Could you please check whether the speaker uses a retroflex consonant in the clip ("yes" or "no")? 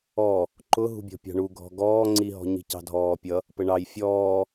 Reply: yes